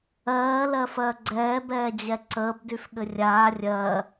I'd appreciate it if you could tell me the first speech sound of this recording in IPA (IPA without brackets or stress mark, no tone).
ɜː